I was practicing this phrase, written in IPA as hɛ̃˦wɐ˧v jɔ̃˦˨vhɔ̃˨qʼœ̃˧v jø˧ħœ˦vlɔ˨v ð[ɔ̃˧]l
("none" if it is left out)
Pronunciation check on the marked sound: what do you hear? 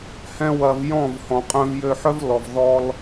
ɔ˧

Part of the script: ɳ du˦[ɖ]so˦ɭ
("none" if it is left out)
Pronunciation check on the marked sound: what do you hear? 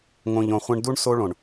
ɳ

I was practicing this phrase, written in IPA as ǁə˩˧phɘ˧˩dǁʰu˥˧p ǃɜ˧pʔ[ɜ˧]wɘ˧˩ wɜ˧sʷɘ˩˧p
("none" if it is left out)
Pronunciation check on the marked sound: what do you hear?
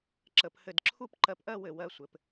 ɜ˥˧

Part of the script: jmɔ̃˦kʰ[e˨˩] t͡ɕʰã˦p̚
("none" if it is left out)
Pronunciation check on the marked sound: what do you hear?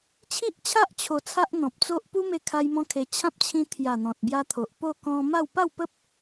e˧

